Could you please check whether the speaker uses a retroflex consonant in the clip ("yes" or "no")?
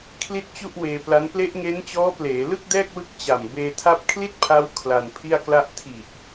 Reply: no